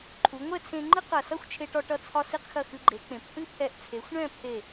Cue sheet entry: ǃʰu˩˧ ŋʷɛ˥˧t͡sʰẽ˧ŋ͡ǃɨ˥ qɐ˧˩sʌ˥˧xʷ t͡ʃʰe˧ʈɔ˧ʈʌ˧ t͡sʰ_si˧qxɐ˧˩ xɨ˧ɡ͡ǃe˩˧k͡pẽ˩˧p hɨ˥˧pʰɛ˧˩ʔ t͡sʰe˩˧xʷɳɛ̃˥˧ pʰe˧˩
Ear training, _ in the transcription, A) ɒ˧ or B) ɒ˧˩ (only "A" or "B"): A